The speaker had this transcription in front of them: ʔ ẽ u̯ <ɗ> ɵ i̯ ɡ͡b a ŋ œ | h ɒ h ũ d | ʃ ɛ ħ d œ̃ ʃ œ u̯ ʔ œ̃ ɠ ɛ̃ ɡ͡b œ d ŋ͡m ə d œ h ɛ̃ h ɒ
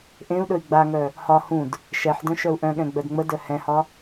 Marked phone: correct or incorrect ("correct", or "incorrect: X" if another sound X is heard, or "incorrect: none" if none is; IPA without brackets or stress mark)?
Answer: correct